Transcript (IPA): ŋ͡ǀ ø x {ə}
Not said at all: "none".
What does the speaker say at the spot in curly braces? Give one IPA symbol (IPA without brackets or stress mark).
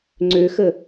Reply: ə